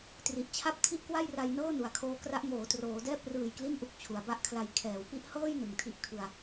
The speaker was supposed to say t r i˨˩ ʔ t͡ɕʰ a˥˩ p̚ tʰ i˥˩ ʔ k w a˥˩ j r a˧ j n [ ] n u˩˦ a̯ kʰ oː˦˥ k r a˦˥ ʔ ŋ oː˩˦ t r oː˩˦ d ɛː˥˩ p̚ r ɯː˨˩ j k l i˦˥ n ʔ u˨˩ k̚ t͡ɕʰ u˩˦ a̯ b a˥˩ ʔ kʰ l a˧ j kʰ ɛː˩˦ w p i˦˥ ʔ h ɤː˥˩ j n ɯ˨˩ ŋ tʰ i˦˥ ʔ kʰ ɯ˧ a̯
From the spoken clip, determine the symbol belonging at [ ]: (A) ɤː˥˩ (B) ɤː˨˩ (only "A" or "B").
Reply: A